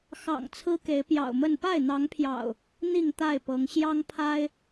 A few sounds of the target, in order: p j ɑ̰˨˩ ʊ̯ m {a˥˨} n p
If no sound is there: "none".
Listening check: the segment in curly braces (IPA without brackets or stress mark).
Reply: ə˥˨